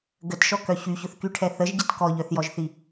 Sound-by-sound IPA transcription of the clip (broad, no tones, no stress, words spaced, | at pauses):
ɡətʃɔkœ çyçʊθkyʈʰɛ θəʒɟət kɔʎœθjɔʒθi